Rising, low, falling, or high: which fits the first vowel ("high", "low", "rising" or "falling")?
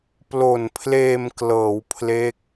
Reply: low